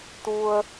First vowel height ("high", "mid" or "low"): high